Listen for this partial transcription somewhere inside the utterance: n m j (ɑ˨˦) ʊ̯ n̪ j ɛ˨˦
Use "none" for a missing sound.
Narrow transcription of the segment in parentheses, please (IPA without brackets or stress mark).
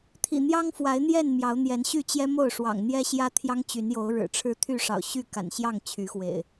ɑ˨˦